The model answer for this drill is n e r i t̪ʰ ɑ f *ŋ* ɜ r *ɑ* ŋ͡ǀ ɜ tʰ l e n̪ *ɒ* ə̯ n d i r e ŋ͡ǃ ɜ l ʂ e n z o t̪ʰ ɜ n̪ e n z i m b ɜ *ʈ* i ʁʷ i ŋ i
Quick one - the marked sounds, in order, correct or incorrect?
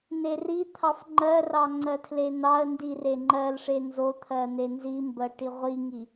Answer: incorrect: ŋ͡ǃ, correct, incorrect: ɑ, correct

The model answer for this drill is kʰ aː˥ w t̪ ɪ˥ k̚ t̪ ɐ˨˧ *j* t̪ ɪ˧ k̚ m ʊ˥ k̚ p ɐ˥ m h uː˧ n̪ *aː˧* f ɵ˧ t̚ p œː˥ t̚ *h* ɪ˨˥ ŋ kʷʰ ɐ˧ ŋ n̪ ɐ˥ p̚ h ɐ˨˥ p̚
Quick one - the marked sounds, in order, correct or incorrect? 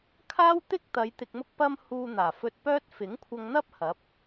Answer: correct, incorrect: aː˨˩, incorrect: f

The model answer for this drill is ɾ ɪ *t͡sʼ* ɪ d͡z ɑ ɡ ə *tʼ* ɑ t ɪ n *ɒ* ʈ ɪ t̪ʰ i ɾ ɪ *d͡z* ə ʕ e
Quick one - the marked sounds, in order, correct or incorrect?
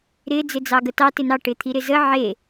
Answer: incorrect: d͡z, incorrect: t, incorrect: ɑ, incorrect: z

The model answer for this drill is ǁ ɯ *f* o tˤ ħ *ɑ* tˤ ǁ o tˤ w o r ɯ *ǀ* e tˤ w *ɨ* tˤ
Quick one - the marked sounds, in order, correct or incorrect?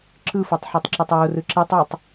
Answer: correct, correct, incorrect: ǁ, incorrect: i

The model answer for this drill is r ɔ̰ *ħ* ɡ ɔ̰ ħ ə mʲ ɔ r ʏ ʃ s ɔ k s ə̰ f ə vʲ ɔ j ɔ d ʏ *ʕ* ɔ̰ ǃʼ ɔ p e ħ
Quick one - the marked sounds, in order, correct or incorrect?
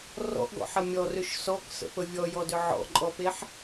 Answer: incorrect: ʔ, correct

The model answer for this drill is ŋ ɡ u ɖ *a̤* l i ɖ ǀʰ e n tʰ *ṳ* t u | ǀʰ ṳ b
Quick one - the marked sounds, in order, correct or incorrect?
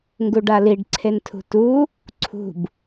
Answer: incorrect: a, correct

